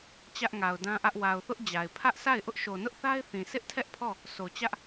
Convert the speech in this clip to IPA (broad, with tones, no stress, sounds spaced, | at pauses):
t͡ɕ ä˦ ʔ ŋ a˨ ʊ̯ d ã˦ ʔ ä˦ ʔ w a˨ ʊ̯ θ ʊ˦ ʔ d͡ʑ a˨ ɪ̯ pʰ ä˦ ʔ sʰ a˦˨ ɪ̯ ʔ ʊ˦ ʔ ʃ o˨ n ʊ˦ ʔ θ a˦ ɪ̯ θ ĩ˨ sʰ ɪ˦ ʔ tʰ ɛ˦ ʔ pʰ ɔ˦˨ | sʰ o˨ t͡ɕ ä˦ ʔ